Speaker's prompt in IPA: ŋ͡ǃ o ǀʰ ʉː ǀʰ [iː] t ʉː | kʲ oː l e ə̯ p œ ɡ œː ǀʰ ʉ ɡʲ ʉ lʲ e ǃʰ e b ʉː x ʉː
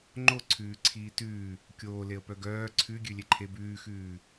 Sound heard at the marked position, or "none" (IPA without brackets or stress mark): iː